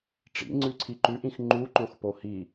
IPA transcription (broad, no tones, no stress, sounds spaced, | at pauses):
ʈ͡ʂ ḭ ŋ͡ǀ ʉ ǀʰ i ǃ ʉ ʔ ĩ x ŋ͡ǃ u ǃ õ x p o h i